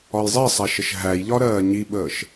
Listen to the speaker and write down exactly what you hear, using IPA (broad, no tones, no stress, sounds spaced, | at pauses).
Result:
ɒ j zˤ i sˤ æ ʃ ə ʃ ɦ æ j ʎ ɒ ɾ ɜː ɲ i ɓ əː ʃ